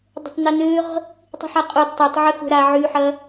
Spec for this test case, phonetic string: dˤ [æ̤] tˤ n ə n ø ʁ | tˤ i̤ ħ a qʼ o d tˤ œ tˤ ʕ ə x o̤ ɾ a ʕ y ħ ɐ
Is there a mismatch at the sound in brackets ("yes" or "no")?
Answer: yes